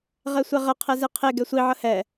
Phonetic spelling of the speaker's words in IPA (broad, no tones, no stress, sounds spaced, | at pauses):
ʁ ɛ sʷ ɛ ʁ ə qʰ ɛ z e qʰ e ɡ ɛ sʷ i ʕ ə h ɛ